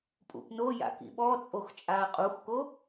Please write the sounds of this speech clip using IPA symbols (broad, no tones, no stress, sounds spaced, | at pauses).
pʼ ṵ p n o j a̰ k ḭ ɓ ɔ t͡sʼ o x t͡ʃʼ aː qʼ u x k o